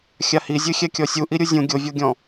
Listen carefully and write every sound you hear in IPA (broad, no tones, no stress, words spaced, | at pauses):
xʲahizʲɨ xʲɛkʲɔsʲu ʔiɾʲuzʲũ ɡʲovʲoɡʲɔ̃